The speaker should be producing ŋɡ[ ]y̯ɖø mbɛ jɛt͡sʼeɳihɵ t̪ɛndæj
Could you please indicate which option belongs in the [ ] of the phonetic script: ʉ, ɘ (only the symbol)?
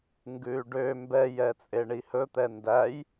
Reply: ʉ